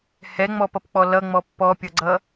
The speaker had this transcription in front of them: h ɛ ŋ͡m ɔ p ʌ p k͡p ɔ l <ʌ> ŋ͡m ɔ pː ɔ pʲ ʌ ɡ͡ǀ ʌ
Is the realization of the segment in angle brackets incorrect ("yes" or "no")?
no